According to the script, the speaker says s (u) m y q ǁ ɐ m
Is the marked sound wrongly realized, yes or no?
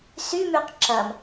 yes